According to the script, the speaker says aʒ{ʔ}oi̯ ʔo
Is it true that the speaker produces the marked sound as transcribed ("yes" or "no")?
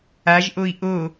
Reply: yes